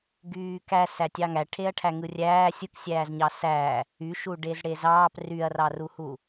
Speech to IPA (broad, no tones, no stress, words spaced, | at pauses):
ɡyːkæ sætʲɑŋæ ʈʰeɐ̯ʈʰæŋɯrʲæː sʲɯksʲæːzɲɑ sæ | yʃuɖez ɽezɑːp ryɐ̯rɑruhu